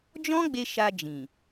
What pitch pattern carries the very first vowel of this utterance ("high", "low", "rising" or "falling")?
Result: high